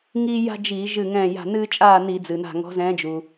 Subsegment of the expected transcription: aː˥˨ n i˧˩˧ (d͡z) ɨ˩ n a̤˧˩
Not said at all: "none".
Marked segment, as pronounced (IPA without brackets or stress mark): d͡z